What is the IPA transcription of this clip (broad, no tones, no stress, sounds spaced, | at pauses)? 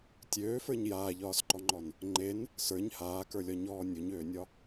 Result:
tʲ øː f ə˞ ɲ j aː ʎ ɒː s ǃ ɔ ŋ͡ǃ ɔ n | ŋ͡ǃ e n | s ə˞ ɲ h aː k ə˞ lʲ ɒ ɲ ɔː nʲ u ɲ øː nʲ ɒ